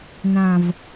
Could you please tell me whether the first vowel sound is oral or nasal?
nasal